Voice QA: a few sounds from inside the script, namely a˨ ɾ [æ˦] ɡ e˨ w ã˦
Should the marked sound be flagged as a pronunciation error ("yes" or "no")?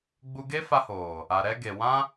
yes